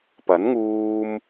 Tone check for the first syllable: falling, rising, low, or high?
rising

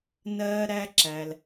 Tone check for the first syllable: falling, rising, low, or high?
high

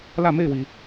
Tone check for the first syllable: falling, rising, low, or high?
falling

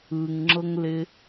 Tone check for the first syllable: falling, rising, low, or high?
low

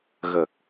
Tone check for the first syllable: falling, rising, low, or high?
low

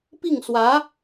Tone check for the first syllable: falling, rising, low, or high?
falling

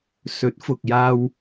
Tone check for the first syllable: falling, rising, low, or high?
rising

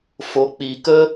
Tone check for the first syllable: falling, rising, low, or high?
rising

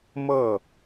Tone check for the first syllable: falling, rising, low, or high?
falling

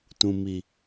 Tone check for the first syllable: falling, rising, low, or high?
low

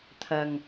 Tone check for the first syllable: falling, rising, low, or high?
low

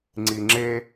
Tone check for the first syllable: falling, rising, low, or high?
low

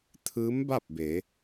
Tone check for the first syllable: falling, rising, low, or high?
rising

